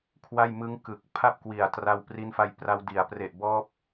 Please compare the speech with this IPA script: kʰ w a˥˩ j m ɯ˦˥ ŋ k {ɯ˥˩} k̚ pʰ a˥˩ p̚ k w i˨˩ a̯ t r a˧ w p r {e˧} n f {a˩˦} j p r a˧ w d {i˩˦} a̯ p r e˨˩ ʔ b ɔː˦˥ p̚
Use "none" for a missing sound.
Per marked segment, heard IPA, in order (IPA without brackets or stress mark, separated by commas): ɯ˨˩, i˧, a˧, i˩˦